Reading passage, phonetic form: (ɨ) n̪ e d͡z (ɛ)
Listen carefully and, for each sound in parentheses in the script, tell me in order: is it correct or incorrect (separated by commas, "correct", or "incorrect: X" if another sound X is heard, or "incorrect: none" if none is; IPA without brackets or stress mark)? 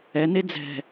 incorrect: ɛ, incorrect: ɛ̤